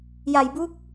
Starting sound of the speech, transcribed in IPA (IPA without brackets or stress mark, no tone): j